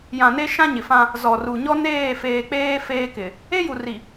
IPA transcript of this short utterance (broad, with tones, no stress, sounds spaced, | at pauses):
j ã˨ n e˦ ʃ ã˦ ɲ ɪ˨ f ã˦ | z ɔ˨ r u˨ ɲ ɔ˦ n eː˦˨ f eː˨ k͡p eː˦ f eː˦ k ɪ˨ | e˦ j u˨ r i˨